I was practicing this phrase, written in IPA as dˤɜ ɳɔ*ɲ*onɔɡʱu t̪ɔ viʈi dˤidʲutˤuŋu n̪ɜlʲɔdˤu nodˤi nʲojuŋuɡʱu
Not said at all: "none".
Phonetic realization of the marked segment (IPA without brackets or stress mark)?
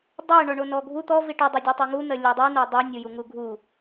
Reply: ɳ